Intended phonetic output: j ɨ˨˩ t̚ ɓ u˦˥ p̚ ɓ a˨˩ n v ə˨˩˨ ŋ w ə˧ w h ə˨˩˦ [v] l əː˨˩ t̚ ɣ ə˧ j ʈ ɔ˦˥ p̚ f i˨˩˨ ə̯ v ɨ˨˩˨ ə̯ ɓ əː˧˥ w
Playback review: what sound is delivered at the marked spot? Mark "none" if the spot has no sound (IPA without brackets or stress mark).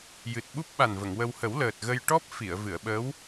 w